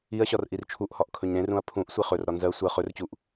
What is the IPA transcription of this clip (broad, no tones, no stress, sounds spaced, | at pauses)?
i ɐ̯ ɕ ɒ r ʔ i r t͡ʃʰ u ʔ h ɒ ʔ kʰ ɵ ɲ ɾ ẽ r ũ ɐ̯ pʰ ũ ʔ sʷ e χ ɵ r ɾ ɒ n z ɜ sʷ ɜ χ ɵ r t͡ɕ u ʔ